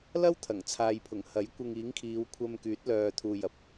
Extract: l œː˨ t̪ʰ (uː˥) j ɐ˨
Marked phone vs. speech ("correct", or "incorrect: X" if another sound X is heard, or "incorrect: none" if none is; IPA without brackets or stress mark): incorrect: uː˨